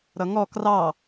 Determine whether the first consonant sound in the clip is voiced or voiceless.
voiced